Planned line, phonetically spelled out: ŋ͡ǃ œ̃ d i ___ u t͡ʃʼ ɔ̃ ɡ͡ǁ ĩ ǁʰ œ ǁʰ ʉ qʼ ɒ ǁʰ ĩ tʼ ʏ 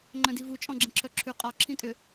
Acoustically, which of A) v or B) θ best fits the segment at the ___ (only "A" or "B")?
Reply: A